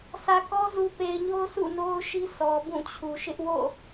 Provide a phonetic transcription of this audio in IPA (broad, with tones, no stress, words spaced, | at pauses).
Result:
sä˨kɔ˦ zu˨pe˨ɪ̯ɲo˦ʊ̯ sʰṵ˦˨no˦ʊ̯ʃi˦ sʰɔ˨bũ˦˨t͡ɕʰu˨ ʃɪ˦ʔwo̰˦˨